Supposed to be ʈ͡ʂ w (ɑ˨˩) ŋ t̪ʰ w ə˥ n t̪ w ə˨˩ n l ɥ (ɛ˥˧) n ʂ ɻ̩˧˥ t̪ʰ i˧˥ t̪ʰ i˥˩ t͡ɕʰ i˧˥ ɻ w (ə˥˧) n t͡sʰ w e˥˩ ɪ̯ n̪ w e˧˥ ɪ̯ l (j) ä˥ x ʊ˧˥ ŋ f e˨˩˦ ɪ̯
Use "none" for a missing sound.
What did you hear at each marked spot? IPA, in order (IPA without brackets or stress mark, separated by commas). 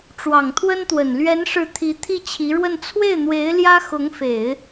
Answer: ɑ˨˩, ɛ˧˥, ə˥˧, j